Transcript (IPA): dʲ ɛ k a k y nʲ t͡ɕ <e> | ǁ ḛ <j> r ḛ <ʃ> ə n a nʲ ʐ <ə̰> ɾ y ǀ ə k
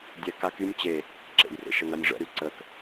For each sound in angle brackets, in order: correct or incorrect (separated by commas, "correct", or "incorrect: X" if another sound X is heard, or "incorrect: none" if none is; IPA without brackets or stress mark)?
correct, correct, correct, correct